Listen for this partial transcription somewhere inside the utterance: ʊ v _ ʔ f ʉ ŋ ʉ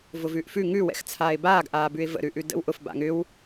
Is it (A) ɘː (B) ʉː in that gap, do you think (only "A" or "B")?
B